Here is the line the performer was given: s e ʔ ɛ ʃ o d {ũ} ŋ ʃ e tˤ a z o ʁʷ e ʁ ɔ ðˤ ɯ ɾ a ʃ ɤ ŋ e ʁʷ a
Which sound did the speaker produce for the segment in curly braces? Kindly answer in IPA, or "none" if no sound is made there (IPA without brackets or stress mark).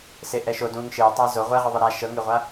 ũ